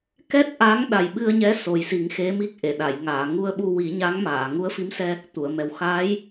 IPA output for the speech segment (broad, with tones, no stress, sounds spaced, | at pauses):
k ɛ˦˥ t̚ ʔ a˧˥ ŋ ɗ a˨˩ j ɓ ɨ˧ ə̯ ɲ ɛ˧˥ s o˨˩ j s i˨˩˦ ŋ x e˧˥ m i˦˥ k̚ ʔ e˨˩˨ ɗ a˨˩˨ j ŋ aː˨˩˨ ŋ u˧ ə̯ ɓ u˧ w i˨˩˦ ɲ a˧˥ ŋ m aː˨˩˨ ŋ u˧˥ ə̯ f i˧˥ m s ɛ˧ | t̪ u˨˩˨ ə̯ m ɛ˨˩ w x aː˧˥ j